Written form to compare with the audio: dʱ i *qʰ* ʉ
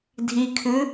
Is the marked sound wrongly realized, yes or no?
yes